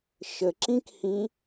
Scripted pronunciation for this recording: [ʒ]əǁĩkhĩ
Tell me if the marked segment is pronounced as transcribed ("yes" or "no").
no